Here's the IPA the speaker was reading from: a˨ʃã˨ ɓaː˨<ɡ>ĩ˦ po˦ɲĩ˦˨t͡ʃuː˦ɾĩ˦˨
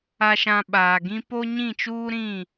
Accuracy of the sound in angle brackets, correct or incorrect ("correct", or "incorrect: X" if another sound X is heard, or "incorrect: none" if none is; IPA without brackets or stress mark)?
correct